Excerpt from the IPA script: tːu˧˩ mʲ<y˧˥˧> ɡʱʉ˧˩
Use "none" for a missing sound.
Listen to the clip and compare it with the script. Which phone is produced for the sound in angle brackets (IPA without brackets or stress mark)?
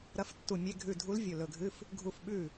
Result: e˧˥˧